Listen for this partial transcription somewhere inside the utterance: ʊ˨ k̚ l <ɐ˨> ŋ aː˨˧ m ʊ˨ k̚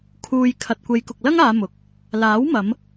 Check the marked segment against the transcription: incorrect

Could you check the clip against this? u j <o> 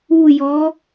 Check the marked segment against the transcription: incorrect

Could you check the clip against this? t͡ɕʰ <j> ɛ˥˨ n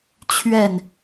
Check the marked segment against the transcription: incorrect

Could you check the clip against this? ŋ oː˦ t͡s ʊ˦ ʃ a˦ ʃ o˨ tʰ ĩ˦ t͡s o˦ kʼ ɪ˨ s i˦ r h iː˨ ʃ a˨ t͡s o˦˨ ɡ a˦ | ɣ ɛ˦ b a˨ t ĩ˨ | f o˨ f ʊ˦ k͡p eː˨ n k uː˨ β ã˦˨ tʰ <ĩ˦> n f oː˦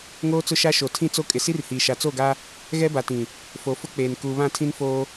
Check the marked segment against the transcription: correct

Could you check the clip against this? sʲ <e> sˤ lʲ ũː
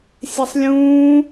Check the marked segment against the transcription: correct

